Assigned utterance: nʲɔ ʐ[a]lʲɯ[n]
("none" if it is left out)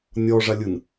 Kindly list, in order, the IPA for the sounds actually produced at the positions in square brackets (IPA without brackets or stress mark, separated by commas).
a, n